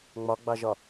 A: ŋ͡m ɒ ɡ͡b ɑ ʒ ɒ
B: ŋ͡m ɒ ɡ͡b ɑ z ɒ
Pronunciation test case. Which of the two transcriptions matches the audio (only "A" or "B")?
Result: A